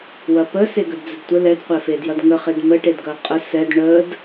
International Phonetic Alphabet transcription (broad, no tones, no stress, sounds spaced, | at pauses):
w ɐ p ə s e ɡ ə d d͡z ə d tʷ ə l ɛ d qʷ ɛ f e d j ɐ d ŋ ə χ e d m ə ʈ e d ɡ ɐ qʼ ə s ɛ d ɳ ə d